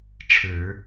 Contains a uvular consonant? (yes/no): no